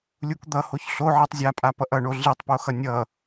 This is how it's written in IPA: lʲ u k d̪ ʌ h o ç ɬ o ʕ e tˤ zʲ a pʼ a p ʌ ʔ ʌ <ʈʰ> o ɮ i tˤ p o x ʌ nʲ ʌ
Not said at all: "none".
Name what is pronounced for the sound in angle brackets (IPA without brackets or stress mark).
ɳ